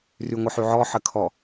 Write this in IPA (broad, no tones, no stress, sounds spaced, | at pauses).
r y ŋʷ ə ħ y ʕ ɔ ħ ə kʰ ɔ